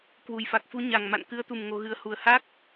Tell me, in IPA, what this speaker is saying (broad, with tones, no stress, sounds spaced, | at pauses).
k w u˨˩ j f a˨˩ k̚ f u˧ ɲ a˨˩ ŋ m a̰˧˨ n k ɨ˧ ə̯ t̪ u˨˩ m ŋ o˧ ɣ ɨ˧ ə̯ h u˨˩ ə̯ h a˦˥ k̚